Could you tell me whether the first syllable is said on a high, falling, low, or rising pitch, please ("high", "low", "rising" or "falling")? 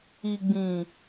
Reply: low